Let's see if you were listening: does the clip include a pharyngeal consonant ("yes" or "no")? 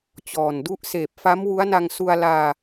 no